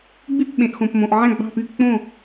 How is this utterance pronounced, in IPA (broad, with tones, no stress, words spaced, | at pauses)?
ɡ͡by˥˩p ɓẽ˩ʔxõ˩pmõ˩ʔ ʕæ̃˥˩ɡ͡bɑ̤˥˩py˥˩ k͡põ˥˩